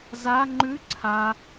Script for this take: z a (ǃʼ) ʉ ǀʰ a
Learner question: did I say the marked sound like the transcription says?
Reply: no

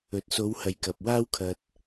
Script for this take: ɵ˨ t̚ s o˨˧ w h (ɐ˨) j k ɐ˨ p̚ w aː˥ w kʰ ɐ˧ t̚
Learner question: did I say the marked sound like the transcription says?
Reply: yes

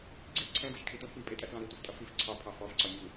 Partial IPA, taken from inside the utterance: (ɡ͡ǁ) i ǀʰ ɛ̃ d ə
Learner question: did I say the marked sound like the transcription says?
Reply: no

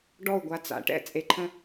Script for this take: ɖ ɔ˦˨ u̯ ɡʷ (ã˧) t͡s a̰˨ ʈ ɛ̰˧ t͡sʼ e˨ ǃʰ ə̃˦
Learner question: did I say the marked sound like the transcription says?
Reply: no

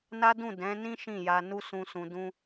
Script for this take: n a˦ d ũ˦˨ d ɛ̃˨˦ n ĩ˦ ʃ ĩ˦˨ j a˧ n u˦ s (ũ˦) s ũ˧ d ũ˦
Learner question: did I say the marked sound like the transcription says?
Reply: yes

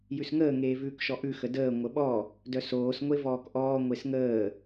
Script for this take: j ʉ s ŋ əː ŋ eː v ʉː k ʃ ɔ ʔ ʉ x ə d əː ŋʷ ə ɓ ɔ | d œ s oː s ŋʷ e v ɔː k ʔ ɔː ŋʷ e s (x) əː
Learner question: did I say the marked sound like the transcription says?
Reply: no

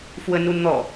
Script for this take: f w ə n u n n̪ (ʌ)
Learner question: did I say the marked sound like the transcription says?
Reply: no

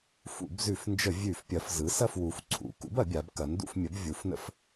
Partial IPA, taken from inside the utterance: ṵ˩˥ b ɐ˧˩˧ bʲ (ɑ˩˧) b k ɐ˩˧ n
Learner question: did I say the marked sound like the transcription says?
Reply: no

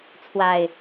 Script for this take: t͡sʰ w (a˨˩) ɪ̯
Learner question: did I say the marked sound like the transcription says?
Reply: yes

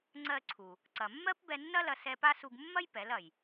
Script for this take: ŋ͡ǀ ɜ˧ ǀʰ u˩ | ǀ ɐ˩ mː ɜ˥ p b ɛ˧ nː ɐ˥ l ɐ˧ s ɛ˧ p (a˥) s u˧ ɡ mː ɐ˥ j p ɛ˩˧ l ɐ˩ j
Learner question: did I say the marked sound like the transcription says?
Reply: yes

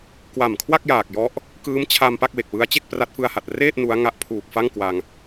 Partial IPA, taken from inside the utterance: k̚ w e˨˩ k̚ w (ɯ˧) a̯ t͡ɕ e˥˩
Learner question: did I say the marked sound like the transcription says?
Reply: no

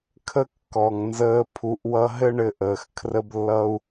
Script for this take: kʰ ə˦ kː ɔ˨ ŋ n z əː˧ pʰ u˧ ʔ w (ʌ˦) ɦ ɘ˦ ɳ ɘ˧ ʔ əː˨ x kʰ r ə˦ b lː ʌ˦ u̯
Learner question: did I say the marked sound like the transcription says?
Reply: yes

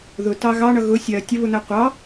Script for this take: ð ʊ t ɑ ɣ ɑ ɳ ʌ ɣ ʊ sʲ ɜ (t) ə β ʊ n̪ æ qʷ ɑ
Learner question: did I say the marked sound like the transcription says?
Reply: no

